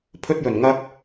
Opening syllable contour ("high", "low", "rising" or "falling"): high